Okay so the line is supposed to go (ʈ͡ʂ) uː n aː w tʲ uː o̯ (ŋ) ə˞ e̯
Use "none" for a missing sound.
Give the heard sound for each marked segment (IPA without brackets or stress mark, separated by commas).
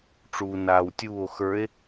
ʈ͡ʂ, x